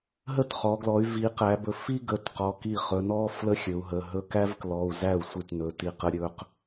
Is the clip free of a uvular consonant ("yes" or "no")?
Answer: no